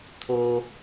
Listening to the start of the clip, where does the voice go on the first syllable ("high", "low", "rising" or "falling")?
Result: high